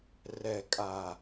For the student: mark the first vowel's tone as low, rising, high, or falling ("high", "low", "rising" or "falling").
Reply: low